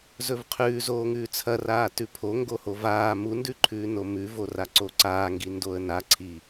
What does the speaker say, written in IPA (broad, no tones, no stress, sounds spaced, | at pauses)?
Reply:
z ɵ v qʰ ʉː z oː ŋ ʉː t͡sʰ ɐ r aː t ʉ pʰ o ŋ ɡ o h o v aː m u n d ʉ ǃʰ ʉː n o m ʉ v o r a ǀ o ǀ aː ŋ ɡ i n d o ə̯ n a ǀʰ i